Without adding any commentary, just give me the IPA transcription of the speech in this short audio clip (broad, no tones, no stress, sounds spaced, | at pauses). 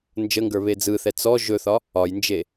n d͡ʒ ə ŋ ɡ ə˞ β e d͡z ɯ θ ɛ t͡s ɔ ʒ ɵ θ ɒ | ɒ j n d͡ʒ e